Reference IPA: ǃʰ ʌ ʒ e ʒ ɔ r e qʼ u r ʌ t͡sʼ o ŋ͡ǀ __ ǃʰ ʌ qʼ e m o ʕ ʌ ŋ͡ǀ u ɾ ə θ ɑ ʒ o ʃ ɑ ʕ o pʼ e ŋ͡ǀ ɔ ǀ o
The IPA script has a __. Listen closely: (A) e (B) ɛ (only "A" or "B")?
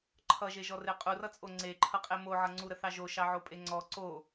A